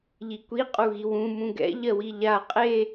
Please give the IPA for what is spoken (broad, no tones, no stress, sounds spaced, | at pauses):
ʎ i kʷ i qʼ u ɣ i w ũ m ũ ɡ ɛ̰ ʎ ɜ w i ʎ a qʼ e